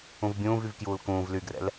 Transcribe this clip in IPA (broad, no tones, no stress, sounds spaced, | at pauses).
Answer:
ũ v bʲ ũː v y v k j uː l k ũː v l y ɡ r ɛ̰ l